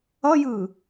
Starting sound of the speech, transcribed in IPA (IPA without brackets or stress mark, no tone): ʌ